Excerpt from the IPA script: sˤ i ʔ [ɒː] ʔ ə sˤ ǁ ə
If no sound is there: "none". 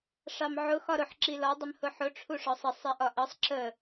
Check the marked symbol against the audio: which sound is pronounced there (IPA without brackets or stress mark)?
ɒ